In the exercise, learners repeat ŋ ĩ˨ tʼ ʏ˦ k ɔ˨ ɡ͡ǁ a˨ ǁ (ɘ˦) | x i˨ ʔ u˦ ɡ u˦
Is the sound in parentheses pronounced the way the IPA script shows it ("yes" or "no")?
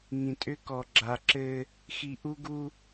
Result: yes